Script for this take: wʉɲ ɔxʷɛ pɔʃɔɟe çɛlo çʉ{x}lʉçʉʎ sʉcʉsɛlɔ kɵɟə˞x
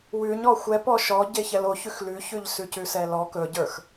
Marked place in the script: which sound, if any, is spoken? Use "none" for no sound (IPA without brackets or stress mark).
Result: x